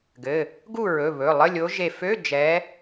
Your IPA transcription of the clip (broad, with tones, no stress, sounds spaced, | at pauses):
ɡ ɘ˩˧˩ | ɡ u˥˨ ɹ ɵ˩˧˩ β ɵ˩˧˩ lˠ ə˧˥˧ lʲ o˨˦ ʒ e˧˩ f ø˧˥˧ d͡ʒ ɛ˨˦